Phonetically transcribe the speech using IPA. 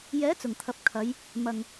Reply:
jɛː˨˥t͡sʊ˨˩ŋt̪ʰɐ˨p̚ kʰɐ˨˧j | mɐ˧ŋ

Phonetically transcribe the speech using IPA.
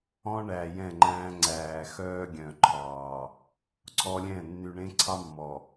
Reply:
ɔ̃˦ ɳæ˨jɛ̃˦˨ŋ͡ǃæ̃ː˦ ŋ͡ǀæː˨xœː˦ɡʲœ̃˨ ǃʰɑː˨ | ǀʰɔ˦lʲɛ̃˦˨ nːy˨ɳẽ˦ ǀʰɑ˦ mːɔ˨

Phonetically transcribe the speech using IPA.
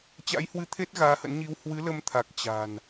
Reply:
t͡ɕa̰˧˥jhwɨ˧t̪ʰe˦˥t̚ ɣaː˨˦hə̰˧˥nɲi˧w hwɨ˨˦lə˧mt̪ʰa˨˩k̚ t͡ɕa̤˨˩n

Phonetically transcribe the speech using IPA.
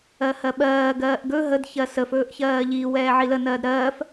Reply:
ɜhɜɓɜː ɡɜːʔɡɵ ɦəd çɜsəf ɵːʔçɜːʎi wɛːʕilə nɜːdɾɜːf

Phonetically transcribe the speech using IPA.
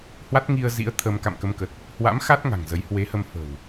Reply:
hwa˦˥t̚ ŋi˧ə̯ zḭ˧˥ə̯t̪ʰə˧m ka̰˧˨mkə˧mkə˨˩t̚ | hwa̰˧˥mxa˦˥t̚ ŋa̤˨˩ŋzə˨˦j hwe˨˦hə˧m fə̤˨˩w

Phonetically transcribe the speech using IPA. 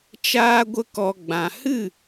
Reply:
t͡ʃaː˧ɡʷə˧kɔ˨ ɡ͡bã˨hɨ˦˨

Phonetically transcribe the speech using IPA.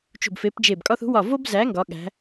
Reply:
t͡ʃṳ˧˩bfe˨˥pd͡ʒe˧˩bkʼɒ˥θ ṳ˨˥wɒ˧˩vo˥bzæ˨˥ ŋɡɒ˨˥ɠæ̤˨˥

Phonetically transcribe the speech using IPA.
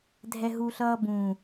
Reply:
dʱɛɦuɬʌːbũ

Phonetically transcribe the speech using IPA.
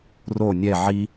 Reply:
ro nʲɛ ʕi

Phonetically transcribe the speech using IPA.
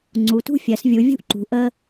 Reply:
ŋ͡ǀu˩˧tṳ˥ fʲɜ˩˧svʲu˩˧ vʲṳ˥ʔǃṳ˩˧ ʔə˧

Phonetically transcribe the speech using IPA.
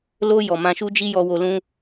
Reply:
lo˧ jɔ˨mã˧ʃu˦d͡ʒi˦ jɔ˧wo˧lũ˦

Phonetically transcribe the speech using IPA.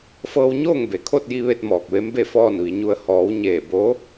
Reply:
fɤː˧wɲoː˥˨ŋ be˩kʰo˥˨t̚ ji˧ ʋe˥˨t̚mɔː˧˩k̚ʋe˧˥mbe˥˨ fɔː˥˨nʋi˩˧ɲu˧ə̯ hɔː˩˧wɲeː˧˩ bo˧˥

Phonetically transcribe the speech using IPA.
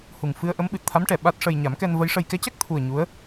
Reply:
hu˨˩ŋ fɨ˧ə̯ ʔə˧˥mɓɨ˨˩t̚ t̪ʰa˧˥mʈɛ˨˩˨ ɓa˦˥t̚ʂə˧j ɲa˨˩˦mkɛ˧n və˧˥jʂə˧j kɛ˧˥cɛ˦˥k̚t̪ʰu˨˩ə̯ ɲu˧˥ə̯

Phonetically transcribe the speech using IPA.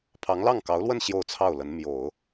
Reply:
pʰɑ˧˥ŋlɑ˥˩ŋkɑ˧˥ʊ̯lwə˥˧n ɕjo˥˧ʊ̯t͡sʰɑ˥˩ʊ̯lə˧˥n mjo˨˩˦ʊ̯

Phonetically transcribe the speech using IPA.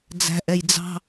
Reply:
d͡zæ̤ʔɛj d͡zɑ̤

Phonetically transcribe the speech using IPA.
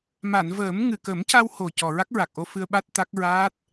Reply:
ma˨˩˨n vəː˨˩˦m ŋɨ˨˩kə˨˩˦mca˧who˨˩ cɔ˨˩ɹa˦˥k̚ɹa˨˩k̚ʔo˧ fɨ˧ə̯ɓa˦˥t̚ t̪a˦˥k̚ ɹaː˦˥t̚

